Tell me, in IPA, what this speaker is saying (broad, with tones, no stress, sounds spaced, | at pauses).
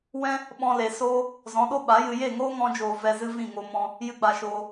w ɛ̃˦ | ɓ ɔ̃˧ l e˨ s oː˦ | z ɔ̃˨˦ ɗ o˦ ɓ a˨˦ j ɨ˧ j e˦˨ ŋ oː˦ ŋ ɔ̃˧ d͡ʒ oː˨ v ɛ˧ z ɨ˦ v ĩ˦˨ ŋ o˧ m ɔ̃˧ | j ɨ˦ ɡ͡b a˧ ʃ oː˧